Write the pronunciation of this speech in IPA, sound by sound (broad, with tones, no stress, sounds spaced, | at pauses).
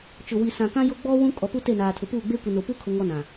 t͡ʃ ʊ˨ w i˨ s ã˨ k ã˦ j o˦ ɡ͡b ɔ˦ w ũ˦ kʼ ɔ˨ p u˦ t e˦˨ n aː˨ tʰ ʊ˨ p uː˦˨ ɡ͡b e˦ kʷ i˨ n o˨ p u˦ kʰ ʊ˦ ŋ ɔ˦ n ã˨